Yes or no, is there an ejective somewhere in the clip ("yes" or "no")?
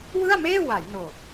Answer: no